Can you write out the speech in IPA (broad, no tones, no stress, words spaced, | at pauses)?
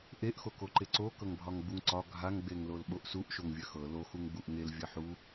ʔeʔxokoǃe ǀokɤŋbʱɒŋ ɡ͡buŋǀɒ ɡʱaŋɡ͡beŋ lolɓoʔsuʔ ʃoŋvʲɐxɤ loxuŋ ɡ͡buʔŋelvʲɐ ħu